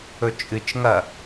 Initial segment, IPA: ɵ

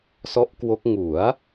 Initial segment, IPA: s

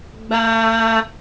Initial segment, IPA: ɡ͡b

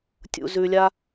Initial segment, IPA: tʲ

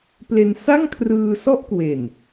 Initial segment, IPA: p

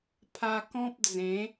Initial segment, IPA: pʰ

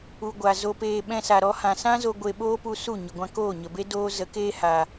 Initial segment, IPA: u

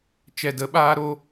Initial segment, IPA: t͡ʃ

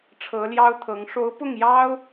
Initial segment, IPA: ʈ͡ʂʰ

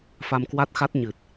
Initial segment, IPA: f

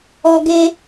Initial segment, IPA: ɔ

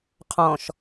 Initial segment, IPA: qʰ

